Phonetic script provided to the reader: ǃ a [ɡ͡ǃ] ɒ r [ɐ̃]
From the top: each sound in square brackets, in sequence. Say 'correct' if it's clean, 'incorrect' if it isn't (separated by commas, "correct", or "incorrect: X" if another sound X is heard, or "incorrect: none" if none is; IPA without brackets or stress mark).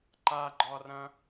correct, correct